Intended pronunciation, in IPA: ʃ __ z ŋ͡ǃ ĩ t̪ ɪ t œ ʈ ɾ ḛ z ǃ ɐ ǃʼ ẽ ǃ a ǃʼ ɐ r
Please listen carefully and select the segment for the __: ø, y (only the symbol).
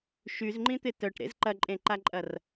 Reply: y